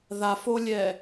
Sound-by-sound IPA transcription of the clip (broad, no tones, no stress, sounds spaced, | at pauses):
ð a f o lʲ ɛ